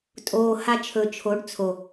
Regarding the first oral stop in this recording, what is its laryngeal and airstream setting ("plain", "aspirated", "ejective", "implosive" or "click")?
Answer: ejective